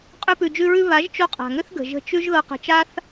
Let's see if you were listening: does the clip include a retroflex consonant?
no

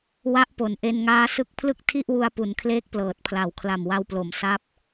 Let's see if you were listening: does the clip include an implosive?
no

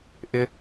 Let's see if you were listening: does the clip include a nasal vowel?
no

